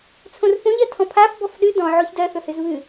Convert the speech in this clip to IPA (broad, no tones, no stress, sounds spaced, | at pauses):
t͡sʰ õ r p õ ʎ ɜ tʰ ɔ̃ pʰ a f b ɔ f ɗ ɨ d ɔ̃ ʕ o ç d ɜ θ ɵ h ɨ z β ɨ